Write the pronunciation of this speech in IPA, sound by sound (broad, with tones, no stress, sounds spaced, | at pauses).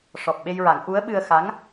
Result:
ʂ ɔ˨˩ p̚ ɓ e˧ j ɹ a˨˩˦ ŋ ʔ u˧˥ ə̯ ɓ ɨ˧ ə̯ x a˧˥ ŋ